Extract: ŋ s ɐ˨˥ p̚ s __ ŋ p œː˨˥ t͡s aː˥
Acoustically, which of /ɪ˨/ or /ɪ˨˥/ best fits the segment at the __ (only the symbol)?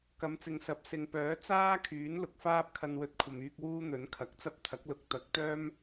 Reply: ɪ˨